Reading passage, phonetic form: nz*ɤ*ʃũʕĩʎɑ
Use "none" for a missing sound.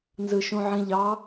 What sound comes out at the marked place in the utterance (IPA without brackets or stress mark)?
ɯ